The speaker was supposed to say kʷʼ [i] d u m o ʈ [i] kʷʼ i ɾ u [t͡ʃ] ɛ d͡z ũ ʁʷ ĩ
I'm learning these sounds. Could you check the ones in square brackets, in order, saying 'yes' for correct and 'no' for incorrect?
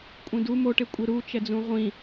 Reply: no, no, yes

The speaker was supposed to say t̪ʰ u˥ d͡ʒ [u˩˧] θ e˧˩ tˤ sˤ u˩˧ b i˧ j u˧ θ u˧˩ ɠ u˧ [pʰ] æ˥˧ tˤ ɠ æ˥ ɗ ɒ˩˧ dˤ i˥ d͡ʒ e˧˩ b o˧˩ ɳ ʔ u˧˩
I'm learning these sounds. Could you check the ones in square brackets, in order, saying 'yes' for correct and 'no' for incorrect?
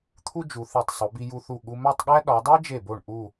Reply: yes, no

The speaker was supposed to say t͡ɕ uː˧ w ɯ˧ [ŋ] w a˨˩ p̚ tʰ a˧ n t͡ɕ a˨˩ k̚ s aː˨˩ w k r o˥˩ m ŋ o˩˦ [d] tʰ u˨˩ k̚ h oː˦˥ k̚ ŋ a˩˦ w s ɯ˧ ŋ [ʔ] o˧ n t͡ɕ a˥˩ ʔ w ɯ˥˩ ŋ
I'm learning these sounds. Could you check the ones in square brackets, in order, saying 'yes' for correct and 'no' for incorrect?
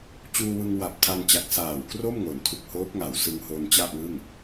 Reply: yes, no, no

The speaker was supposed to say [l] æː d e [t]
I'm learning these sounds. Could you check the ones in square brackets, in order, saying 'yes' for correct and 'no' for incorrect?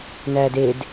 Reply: no, no

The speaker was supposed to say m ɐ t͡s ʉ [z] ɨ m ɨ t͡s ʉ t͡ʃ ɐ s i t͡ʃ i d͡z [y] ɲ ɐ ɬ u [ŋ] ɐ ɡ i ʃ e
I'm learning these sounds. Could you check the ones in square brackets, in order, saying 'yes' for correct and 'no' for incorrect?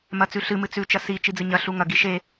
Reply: no, no, yes

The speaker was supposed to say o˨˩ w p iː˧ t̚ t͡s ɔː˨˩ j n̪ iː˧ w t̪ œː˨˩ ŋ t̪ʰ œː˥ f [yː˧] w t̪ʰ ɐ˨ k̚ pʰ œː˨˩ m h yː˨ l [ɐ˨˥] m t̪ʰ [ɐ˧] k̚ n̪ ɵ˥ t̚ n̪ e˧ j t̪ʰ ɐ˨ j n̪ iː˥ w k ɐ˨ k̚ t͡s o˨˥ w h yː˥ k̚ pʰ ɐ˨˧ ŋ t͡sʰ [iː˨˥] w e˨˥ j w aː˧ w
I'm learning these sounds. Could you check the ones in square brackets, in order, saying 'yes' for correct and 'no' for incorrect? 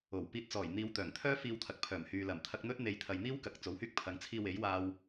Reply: no, no, yes, no

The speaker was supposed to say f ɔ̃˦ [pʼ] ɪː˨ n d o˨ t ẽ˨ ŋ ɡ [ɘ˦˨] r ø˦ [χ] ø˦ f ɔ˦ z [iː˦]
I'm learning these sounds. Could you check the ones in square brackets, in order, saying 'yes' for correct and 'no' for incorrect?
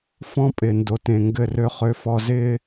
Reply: yes, yes, yes, no

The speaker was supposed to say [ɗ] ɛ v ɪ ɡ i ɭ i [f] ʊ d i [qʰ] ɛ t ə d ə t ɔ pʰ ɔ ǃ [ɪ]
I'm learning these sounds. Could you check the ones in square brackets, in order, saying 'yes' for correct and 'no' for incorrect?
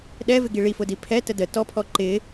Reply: yes, yes, no, yes

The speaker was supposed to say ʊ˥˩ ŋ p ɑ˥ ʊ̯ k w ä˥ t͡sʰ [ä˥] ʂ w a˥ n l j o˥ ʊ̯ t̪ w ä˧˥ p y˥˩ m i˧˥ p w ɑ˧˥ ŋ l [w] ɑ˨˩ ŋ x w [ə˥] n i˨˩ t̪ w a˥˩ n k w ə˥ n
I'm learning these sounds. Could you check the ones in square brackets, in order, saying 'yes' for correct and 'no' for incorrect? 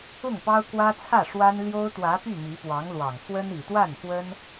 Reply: no, yes, yes

